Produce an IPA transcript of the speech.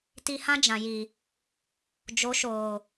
t i˧ h ã˦ d͡ʒ ã˨ j i˨ | d͡ʒ o˨˦ ʃ oː˨

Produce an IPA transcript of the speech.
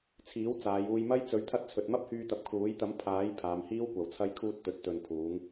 t͡sʰ iː˨˥ w t͡s aː˨˧ j uː˧ j m ɐ˥ j t͡s ɵ˨˥ ɥ t̪ʰ ɐ˧ t̚ t͡sʰ ɵ˨ t̚ m ɐ˥ p̚ h yː˧ t̪ ɐ˨˥ p̚ kʰ uː˨˥ j t̪ ɐ˨˥ m pʰ aː˨˥ j pʰ aː˨˧ m h iː˥ w kʷ ɐ˨ w t͡sʰ ɐ˧ j kʰ uː˧ t̚ t̪ ɵ˨ t̚ t̪ ɵ˨ n pʰ uː˨˧ ŋ

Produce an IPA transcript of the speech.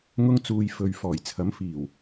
ŋ ʊ˧ ŋ t͡s uː˨ j f ɵ˨ ɥ f ɔː˨˩ j t͡sʰ ɐ˨˥ m f iː˨˩ w

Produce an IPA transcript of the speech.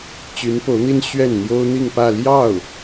t͡ɕ y˧˥ n p o˧˥ ʊ̯ n̪ i˥ n ɕ ɥ ɛ˥˩ n n̪ j o˥ ʊ̯ n̪ i˥˧ ŋ p ä˥˧ l j ɑ˥˩ ʊ̯

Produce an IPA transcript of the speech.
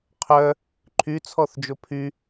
qʰ œ | ǃʰ y t͡sʰ ɔ θ d͡ʒ o pʰ y

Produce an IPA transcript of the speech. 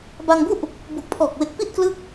b a˧ ŋ b u˥˩ ʔ | b u˨˩ k̚ pʰ ɔː˨˩ k̚ w e˨˩ k̚ p i˥˩ t̚ k l ɯ˦˥ k̚

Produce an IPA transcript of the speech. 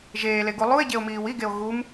ʒ eː l e ɡ u lˠ u e̯ ɟ e o̯ m iː w i ɡ e o̯ ɣ u m

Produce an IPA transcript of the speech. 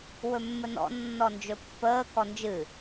w ɵ mː ə n ɔ̰ nː ɔ n d͡ʒ ɵ pː əː k ɔ n d͡ʒ ɨ

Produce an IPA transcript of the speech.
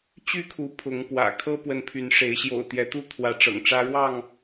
t͡ɕ y˥˨ kʰ u˨˦ pʰ ʊ˨˦ ŋ p w ä̰˨˩ kʰ ɤ˦ p w ə˨˦ n pʰ y˨˦ n ʂ e˨˦ ɪ̯ ɕ j o̰˨˩ ʊ̯ t̪ j ɛ˨˦ t̪ u˦ t̪ʰ w ä˨˦ ʈ͡ʂ ɤ̰˨˩ ŋ ʈ͡ʂ ä˦ ɻ w ɑ˥˨ ŋ

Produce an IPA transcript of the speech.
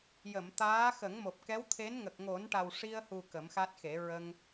j ə˨˩˨ m t̪ aː˧˥ x ə˨˩˦ ŋ m o˨˩ p̚ k ɛ˧˥ w t̪ʰ e˧˥ n ŋ ə˨˩ k̚ ŋ o˨˩˦ n ʈ a˨˩ w ʂ i˧ ə̯ h u˨˩ k ə˨˩˦ m x a˦˥ t̚ x e˨˩˦ ɹ ə˧ ŋ

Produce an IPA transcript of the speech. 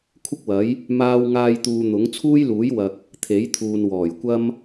kʷʰ ɪ˥ k̚ w ɐ˨˥ j | m aː˧ w ŋ aː˧ j t̪ uː˨ n̪ ʊ˨˥ ŋ t͡sʰ uː˥ j l uː˨˥ j w ɐ˨ k̚ | t̪ʰ e˨˥ j t̪ʰ uː˨ n w ɔː˨˩ j kʷ ɐ˥ m

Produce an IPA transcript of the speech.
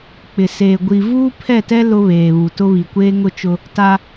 k͡p ɪ˨ s eː˨ ɡʷ i˨ v uː˦ pʰ ɛ˦˨ t ɛ˦ l ʊ˦ β eː˨ β u˨ t ʊ˦ β i˨ kʷ eː˦ ŋ ʊ˦ t͡ʃ ʊ˦ | t a˦

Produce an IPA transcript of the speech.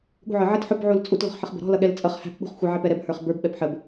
ɠ ṳ ʕ ə˞ ʕ ɪ t ħ ʊ b ʕ u l t͡sʼ u t l ɔ̤ χ ħ ə χ b ə̤ ɾ ɔ̤ l ʌ ɠ ɛ l t͡sʼ ʌ χ h æ̤ p ɓ ṳ χ xʷ ɪ ʕ ɪ p ɛ ɾ ɛ b h ə˞ χ b ə˞ b ɓ ɛ p ħ ə b

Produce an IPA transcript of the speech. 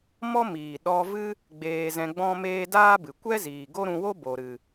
m ɔ˦ m iː˨ ɗ ɔ˧ v ɨ˦ | ɡ͡b eː˧ z ɛ̃˧ ɡ͡b ɔ̃˦ m eː˦ d aː˦ b ɨ˨ kʷ ɛ˦ z iː˨ ɡ o˦ ɾ ũ˧ w o˦ b o˨ ɾ ɨ˨

